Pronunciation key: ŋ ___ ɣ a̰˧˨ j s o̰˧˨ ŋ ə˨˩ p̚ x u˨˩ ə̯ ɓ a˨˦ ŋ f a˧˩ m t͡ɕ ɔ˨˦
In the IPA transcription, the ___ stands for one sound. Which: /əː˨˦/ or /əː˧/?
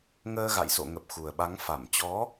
əː˧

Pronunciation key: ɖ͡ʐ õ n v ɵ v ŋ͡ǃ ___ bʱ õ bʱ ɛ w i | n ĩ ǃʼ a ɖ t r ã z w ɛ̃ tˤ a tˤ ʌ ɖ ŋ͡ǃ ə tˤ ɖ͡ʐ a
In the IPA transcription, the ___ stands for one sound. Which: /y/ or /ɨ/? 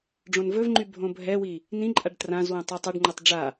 y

